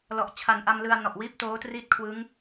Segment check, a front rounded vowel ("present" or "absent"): absent